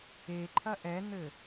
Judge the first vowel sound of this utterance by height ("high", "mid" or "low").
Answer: mid